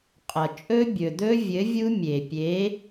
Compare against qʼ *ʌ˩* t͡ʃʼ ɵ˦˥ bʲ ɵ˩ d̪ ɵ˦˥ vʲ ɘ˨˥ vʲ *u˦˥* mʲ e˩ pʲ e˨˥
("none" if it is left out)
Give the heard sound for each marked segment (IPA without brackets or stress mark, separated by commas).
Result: ʌ˩, u˦˥